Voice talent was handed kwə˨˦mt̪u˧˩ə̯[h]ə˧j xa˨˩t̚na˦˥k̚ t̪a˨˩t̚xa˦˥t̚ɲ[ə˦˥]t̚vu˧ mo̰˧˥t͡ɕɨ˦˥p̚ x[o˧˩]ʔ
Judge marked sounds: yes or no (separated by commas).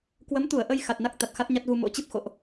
no, no, no